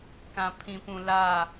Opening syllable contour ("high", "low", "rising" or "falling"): low